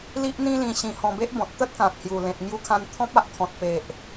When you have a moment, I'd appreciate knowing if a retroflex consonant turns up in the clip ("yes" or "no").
no